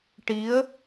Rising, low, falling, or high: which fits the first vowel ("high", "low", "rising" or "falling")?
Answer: rising